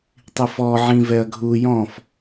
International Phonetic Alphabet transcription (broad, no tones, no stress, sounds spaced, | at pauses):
tˤ i f ɔ ʕ ĩ v ɛ ɐ̯ ɡʱ u j ɔ̃ f